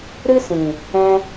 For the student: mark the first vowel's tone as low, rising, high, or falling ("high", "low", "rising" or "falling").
high